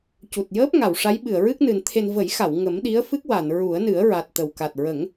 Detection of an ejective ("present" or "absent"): absent